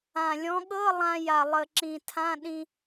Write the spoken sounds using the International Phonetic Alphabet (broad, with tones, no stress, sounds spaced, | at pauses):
ã˨˩ lʲ ɔ̃˨˥ ɠ ɤ˧˥˧ lˠ ã˧ j a˨˩ lˠ ə˨˩ ǁ ĩ˨˩ tʰ ã˧˥˧ ɗ ĩ˧